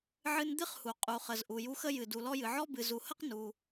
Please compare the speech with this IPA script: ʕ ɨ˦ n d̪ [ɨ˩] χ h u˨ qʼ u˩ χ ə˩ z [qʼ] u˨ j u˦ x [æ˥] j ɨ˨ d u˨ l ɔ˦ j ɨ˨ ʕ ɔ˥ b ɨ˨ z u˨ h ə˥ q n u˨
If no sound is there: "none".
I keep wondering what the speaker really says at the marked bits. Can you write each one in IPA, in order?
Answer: ɨ˥, ʔ, ə˥

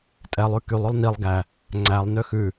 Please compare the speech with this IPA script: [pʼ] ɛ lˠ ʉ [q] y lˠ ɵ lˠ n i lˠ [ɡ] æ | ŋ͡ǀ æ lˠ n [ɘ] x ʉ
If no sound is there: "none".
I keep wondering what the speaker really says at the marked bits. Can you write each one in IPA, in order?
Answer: tʼ, k, ɡ, ø

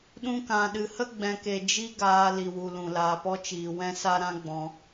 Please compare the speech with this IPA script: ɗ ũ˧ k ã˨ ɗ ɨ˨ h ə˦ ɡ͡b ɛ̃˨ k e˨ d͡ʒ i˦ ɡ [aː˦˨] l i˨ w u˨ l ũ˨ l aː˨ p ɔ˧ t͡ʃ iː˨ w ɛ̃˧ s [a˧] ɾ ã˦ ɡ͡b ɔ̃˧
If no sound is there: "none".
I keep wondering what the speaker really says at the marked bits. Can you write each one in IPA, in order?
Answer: aː˧, a˦

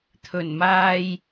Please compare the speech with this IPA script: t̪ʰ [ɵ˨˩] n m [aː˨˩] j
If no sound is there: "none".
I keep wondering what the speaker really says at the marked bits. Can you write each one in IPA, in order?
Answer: ɵ˨˩, aː˧

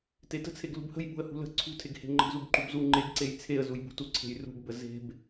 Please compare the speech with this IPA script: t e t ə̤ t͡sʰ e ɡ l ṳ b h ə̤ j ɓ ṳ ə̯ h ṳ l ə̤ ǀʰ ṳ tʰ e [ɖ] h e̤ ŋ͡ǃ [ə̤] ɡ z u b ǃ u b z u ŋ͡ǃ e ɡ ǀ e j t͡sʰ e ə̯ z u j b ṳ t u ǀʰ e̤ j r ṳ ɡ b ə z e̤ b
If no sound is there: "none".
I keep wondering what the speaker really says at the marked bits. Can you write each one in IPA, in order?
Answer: ɡ, ə̤

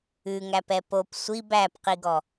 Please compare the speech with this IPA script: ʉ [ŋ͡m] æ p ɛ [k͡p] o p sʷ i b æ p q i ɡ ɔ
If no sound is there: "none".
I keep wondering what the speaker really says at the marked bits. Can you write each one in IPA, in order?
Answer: ŋ, p

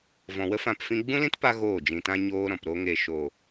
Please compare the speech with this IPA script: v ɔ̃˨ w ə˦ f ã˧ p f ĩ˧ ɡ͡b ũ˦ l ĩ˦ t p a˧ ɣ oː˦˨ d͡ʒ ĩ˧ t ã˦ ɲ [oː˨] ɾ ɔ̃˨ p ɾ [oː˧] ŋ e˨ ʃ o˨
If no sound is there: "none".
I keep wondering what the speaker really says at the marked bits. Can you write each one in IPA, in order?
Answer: oː˦, o˧

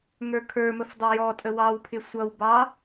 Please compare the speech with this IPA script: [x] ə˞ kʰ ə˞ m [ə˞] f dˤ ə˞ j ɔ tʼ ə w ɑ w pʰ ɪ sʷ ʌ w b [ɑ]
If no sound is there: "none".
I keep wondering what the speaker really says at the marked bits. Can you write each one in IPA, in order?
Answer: ŋ, ə, ɑ

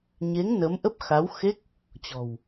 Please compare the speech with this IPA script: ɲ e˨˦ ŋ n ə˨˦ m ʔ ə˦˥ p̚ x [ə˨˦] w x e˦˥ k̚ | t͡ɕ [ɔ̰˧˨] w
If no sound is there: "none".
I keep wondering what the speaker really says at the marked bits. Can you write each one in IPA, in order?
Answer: a˨˦, ɔ̤˨˩

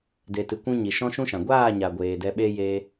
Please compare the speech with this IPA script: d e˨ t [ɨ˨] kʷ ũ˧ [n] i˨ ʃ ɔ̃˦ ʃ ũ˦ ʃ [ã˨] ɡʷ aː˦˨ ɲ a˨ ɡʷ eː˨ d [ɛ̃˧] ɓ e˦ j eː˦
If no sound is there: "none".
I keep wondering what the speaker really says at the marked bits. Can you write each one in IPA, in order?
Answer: ɨ˨, ɲ, ã˨, ɛ˧

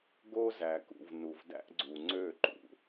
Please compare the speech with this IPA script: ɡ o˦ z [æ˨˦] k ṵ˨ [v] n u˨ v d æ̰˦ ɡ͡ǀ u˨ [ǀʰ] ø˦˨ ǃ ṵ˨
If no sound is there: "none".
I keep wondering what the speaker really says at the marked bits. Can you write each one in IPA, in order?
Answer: æ˨, v, ŋ͡ǀ

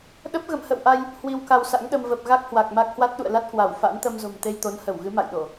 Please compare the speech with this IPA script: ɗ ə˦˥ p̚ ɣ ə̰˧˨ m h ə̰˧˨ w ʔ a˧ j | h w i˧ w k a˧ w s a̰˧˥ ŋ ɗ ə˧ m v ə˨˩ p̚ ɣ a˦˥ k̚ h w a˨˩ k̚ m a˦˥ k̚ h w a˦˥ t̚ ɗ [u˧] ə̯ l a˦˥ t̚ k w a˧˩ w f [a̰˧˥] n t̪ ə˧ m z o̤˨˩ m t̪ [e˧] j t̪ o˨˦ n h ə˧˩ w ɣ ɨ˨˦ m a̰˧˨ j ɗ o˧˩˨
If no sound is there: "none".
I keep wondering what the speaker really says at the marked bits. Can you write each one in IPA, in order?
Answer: ṵ˧˨, a̰˧˥, e˧

